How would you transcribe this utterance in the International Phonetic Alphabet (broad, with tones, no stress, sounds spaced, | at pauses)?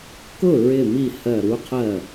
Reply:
k ʊ˥˩ ɹ ɪ˧˩ m i˧˩ h ɜ˧˩ ɾ u˦˥ qʰ ɜ˥˩